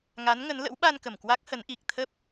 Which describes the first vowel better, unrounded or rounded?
unrounded